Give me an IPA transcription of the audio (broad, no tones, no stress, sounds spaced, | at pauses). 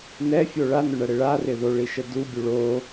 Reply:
n ɛ fʲ o ɭ a n ʊ ɳ ɐ ɽ ɪ ɭ a r ɪ ð o ɭ i ʃ ə d u bʲ u ɭ o